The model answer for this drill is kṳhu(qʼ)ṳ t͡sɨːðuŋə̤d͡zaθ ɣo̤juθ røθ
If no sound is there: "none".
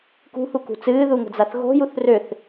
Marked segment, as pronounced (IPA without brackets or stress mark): k